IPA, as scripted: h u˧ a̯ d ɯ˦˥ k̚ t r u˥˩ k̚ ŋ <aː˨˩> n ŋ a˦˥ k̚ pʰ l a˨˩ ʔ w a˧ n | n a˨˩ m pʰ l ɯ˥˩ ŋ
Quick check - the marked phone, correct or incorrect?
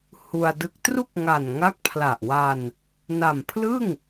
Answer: incorrect